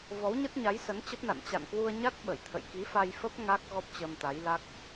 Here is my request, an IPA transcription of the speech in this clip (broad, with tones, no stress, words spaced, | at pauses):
vɔ˨˦wɲə˦˥t̚ɲa˨˦j sə˨˦nt͡ɕə˦˥p̚na̰˧˨n t͡ɕa̰˧˨nkwu˧ə̯ɲa˦˥t̚ ɓə˧˩jt̪ʰə̰˧˨j ki˨˦fa˧jfə˦˥p̚ ŋa˦˥k̚ ɣɔ˦˥p̚t͡ɕəː˧mt̪a˨˦jla˦˥k̚